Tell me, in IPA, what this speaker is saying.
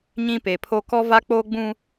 ɲ ĩ˦ p e˨ pʰ o˦ k ɔ˦ v a˦ k͡p oː˦ ɡ͡b ũ˦

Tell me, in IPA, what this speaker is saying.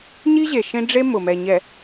ɲ i˦ ʑ e˨ ʃ ẽ˦ ɖ͡ʐ e˦ m ʊ˨ m ɛ˨ ɲ ɛ˨

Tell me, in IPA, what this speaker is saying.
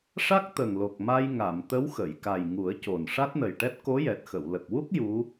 ʂ a˦˥ k̚ t̪ ə˨˩ ŋ l o˨˩ k̚ m a˧ j ŋ a˨˩˨ m t̪ ə˧˥ w x ə˨˩˨ j k a˨˩ j ŋ u˨˩˦ ə̯ c o˨˩ n ʂ a˦˥ t̚ n ə˨˩ j ʈ ɛ˦˥ t̚ k o˧˥ j ɛ˨˩ t̚ x ə˨˩˨ w l ə˨˩ k̚ w u˦˥ k̚ j u˧˥

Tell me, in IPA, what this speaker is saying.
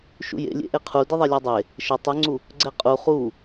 ʃ ṵ j ḛ lʲ ḛ ʔ e qʰ u d ɪ ðˤ ɛ lʲ ɔ dˤ e | ʃ ə tˤ ə ŋ͡ǀ u | ɡ͡ǀ ɛ qʼ u χ u

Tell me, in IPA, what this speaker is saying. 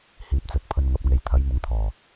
h iː˨ p̚ t͡s ɵ˨˥ t̚ pʰ ɵ˧ n ŋ ɐ˨˥ p̚ ŋ e˨˧ j t̪ʰ ɐ˨˥ j m ʊ˨˥ ŋ t̪ʰ ɔː˨˩

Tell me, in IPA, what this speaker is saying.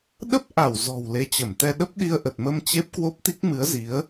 ɗ ə˦˥ p̚ ʔ a˧˩ w z ɔ̤˨˩ w l e˨˦ t͡ɕ ə˧˩ m t̪ ɛ˧ ɗ ə˦˥ p̚ ɗ i˧ ə̯ ʔ ə˨˩ t̚ m ə˧ m t͡ɕ e˦˥ p̚ k w o˦˥ p̚ t̪ i˦˥ k̚ m ɨ˨˦ ə̯ z i˨˦ ə̯

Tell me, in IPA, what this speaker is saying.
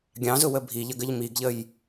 ɡʲ ɑ̃ z ʊ w ə bʱ i ʎ ə ɡ ə ʎ m i ɡ ʎ ə j

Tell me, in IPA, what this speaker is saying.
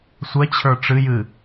sʷ ɛ t͡ɕʰ ə˞ ʈ͡ʂ ɨ j ɨ

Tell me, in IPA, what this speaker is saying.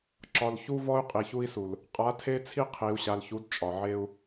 ǁ ɒ˨ l ç u˦ v ɔ˦ y̯ qʼ i˨ ç u˦ i̯ s u˨ l | qʼ a˨˦ tʰ e˦ t͡sʰ i˦ qʰ i˨ u̯ ɕ a˨ l ç u˨˦ d t͡ʃʼ ɒ˨ ʕ e˦ u̯

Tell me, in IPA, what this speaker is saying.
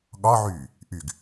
ɠ ɒ ʕ yː | ʔ y ɡ

